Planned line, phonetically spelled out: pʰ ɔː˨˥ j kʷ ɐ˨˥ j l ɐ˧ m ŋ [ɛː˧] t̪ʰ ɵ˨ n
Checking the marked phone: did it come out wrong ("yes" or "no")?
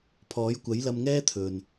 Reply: yes